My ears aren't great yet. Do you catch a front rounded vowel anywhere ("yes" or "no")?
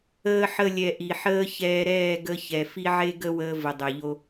no